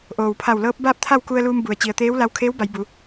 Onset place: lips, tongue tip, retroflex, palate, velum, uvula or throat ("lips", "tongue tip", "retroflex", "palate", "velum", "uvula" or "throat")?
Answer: throat